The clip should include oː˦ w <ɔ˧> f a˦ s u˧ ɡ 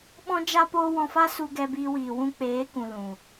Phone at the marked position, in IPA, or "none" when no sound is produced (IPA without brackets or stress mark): ɔ̃˧